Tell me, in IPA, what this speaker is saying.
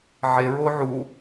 ʕ e ɹ o ʕ u

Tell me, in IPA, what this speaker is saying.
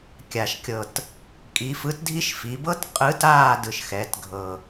kʲ a˨˩ ʃ kʲ ɤ˨˩ t | kʼ i˩˧ f ɯ˨˥ t dʱ i˦˥ ʃ f i˩˧ b ɤ˦˥ t qʼ ɯ˨˥ t aː˥˨ d ɯ˨˩ ʃ x ɛ˩˧ t ɡʱ ɤ˨˩

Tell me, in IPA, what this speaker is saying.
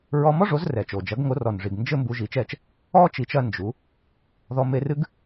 ɹ ɔ˧ m ɔ˥ ʐ o˩˥ z r ɛ˩ t͡ʃ o˩ d͡ʒ ɐ˩˥ ɡ ŋ o˩˥ r ɔ˩ n ʐ i˩ ɡ n d͡ʒ ɘ˥ m b u˩˥ ʒ i˩˥ t͡ʃ ɛ˥˩ t͡ʃ | ɔ˥ t͡ʃ i˩˥ t͡ʃ ɐ˧ n d͡ʒ u˩˥ | ð ɔ˧ m e˧ r ɨ˥ ɡ

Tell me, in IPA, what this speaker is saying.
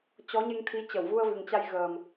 t͡ɕ ɔ˨˦ ɲ e˧ ŋ t̪ʰ i˨˦ t͡ɕ ə˧˩ w v u˧ ə̯ v ɨ˨˩ ŋ t͡ɕ a˧ j ɣ əː˨˩ m

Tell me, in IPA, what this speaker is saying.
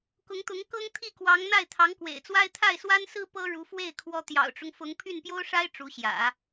k ʊ˧˥ ŋ t̪ ʊ˧˥ ŋ k ɤ˥ ŋ t̪ʰ i˥˩ k w ɑ˧˥ ŋ n̪ a˥˩ ɪ̯ t̪ʰ ɑ˧˥ ŋ k w ḛ˨˩ ɪ̯ t͡s w a˥ ɪ̯ t̪ʰ a˥˩ ɪ̯ s w a˥ n s ɹ̩˥ p ɤ˥ ɻ u˧˥ f w e˥˩ ɪ̯ kʰ w ɔ˥ t̪ j ɑ̰˨˩ ʊ̯ ʈ͡ʂ ʊ˦ ŋ f ʊ˧˥ ŋ pʰ y˥˩ n p j o˥ ʊ̯ ʂ a˥ ɪ̯ ʈ͡ʂ u˧˥ ɕ j ä̰˨˩˦

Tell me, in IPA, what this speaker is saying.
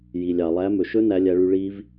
j i˩ lʲ ɑ˩ lˠ æ˨˦ m ɵ˩ ʃ ɵ˦˥ n æ˨˦ lʲ æ˨˦ ɭ y˨˦ ɭ i˦˥ v

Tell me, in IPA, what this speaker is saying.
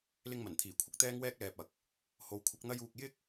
l ɪ˧ ŋ m ɐ˨˩ n t̪ʰ iː˨˩ kʷʰ ɪ˧ k̚ t̪ ɛː˥ ŋ w ɛː˥ k̚ l ɛː˨ p̚ ɐ˨ k̚ | h o˨˧ w kʷʰ ɐ˨˥ k̚ n̪ ɐ˥ j uː˧ k̚ j ɪ˥ k̚

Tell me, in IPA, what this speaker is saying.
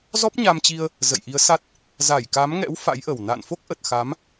z ɔ˦˥ p̚ ɲ a˧ m t͡ɕ i˧ ə̯ | z ə̰˧˨ j ʔ i˨˦ ə̯ s a˦˥ t̚ | z a˧˩ j k a˨˦ m ŋ ɛ̰˧˥ w f a̰˧˥ j ʔ ə˨˩ w n a̰ː˧˨ n f o˦˥ k̚ ʔ ə˨˩ t̚ x a˨˦ m

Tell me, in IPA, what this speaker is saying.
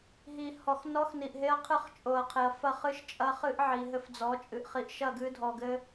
ɦ i˨ h ɔ˨ x n ɔ˦ x n i˨ ʔ ɦ e˦ ɐ̯ qʰ ɨ˦˨ χ t͡ʃʼ o˨ ɐ̯ qʰ e˨ ɐ̯ f ɐ˦˨ χ ɨ˦ ʃ t͡ʃʼ ɐ˦ χ ɨ˦ ʔ ʕ i˨ ɦ ɘ˦ f d͡z ɔ˨˦ t͡ʃʼ ɨ˨ ʔ χ i˨ ʔ ʃ ɐ˦˨ ɡ ɨ˦ dʱ ɔ˨ ɡ ɘ˦

